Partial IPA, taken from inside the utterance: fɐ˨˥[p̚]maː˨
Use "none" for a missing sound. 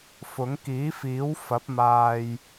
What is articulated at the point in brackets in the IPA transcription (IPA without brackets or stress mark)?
p̚